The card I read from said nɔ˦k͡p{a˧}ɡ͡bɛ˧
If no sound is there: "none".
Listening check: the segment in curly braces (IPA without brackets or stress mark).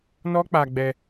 a˧